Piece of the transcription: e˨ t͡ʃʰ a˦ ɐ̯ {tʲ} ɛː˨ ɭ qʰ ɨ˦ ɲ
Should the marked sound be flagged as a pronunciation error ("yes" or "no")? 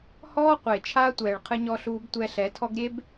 yes